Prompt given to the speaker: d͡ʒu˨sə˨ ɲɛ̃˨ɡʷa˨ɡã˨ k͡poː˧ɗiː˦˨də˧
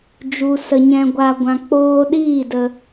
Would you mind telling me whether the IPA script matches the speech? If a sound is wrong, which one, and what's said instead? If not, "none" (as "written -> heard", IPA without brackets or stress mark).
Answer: ɡ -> ɡʷ